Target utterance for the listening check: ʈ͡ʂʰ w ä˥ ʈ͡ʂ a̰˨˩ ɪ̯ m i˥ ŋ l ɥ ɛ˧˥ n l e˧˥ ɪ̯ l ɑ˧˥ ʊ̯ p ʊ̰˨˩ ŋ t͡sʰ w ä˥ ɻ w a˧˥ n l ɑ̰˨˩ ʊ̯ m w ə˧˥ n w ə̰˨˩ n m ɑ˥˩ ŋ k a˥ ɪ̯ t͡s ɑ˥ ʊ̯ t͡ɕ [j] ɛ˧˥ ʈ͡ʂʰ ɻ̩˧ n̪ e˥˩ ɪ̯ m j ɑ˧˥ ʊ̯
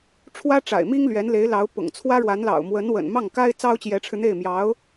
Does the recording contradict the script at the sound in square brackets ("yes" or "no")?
no